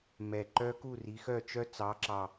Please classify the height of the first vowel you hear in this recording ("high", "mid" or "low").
mid